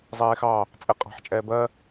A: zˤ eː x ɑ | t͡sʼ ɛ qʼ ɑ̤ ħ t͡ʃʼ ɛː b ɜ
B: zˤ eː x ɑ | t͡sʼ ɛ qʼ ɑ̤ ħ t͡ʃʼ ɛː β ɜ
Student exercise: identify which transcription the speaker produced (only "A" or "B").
A